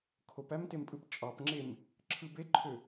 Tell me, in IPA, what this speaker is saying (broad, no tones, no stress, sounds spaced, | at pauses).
kʰ o p æ m t e m pʼ ɯ p t͡ʃʼ ɑ p ŋ͡ǁ e m | ǁʰ ɯ b e ǃʰ ø